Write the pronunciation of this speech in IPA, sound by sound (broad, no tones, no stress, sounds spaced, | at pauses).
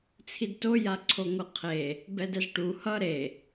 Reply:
t͡sʰ i d t o j a ǀʰ o ŋʷ ɯ qʰ e | b ɛ d ɛ z ʈ u h ʌ ɾ e